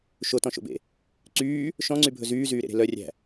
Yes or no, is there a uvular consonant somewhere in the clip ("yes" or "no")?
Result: no